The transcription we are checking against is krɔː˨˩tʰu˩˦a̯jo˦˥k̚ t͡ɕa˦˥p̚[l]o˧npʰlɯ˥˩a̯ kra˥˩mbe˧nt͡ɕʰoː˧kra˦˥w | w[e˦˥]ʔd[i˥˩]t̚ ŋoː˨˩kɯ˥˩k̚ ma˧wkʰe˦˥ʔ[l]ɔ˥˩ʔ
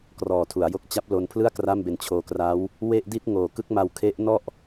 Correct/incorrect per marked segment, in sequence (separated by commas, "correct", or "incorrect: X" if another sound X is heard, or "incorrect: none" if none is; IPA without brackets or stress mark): correct, incorrect: e˥˩, correct, incorrect: n